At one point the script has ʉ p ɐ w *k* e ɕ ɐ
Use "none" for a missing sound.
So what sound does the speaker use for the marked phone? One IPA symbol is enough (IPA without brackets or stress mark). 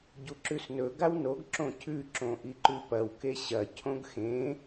k